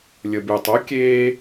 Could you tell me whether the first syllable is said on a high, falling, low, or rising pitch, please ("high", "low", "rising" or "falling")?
low